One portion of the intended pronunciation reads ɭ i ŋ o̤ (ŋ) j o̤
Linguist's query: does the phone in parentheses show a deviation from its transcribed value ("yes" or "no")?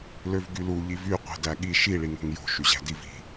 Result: no